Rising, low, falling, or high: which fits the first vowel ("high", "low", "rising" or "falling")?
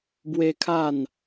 high